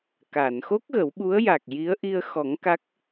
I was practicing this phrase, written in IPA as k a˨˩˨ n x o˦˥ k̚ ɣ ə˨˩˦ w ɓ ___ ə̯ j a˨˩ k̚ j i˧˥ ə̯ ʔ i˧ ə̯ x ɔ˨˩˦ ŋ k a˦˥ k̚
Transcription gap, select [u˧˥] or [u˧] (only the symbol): u˧˥